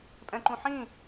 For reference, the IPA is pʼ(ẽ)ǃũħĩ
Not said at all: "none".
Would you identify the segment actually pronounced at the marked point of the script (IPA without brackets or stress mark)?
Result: ɛ̃